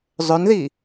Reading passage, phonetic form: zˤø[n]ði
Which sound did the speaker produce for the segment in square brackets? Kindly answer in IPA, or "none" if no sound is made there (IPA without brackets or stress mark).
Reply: n